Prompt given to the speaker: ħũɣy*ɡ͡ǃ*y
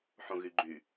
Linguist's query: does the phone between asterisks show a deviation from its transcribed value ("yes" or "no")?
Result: no